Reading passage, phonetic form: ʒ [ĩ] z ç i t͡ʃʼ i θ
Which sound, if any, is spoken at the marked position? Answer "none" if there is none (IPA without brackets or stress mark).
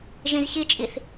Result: ĩ